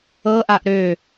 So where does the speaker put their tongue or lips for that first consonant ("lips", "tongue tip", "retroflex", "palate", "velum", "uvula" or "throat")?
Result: throat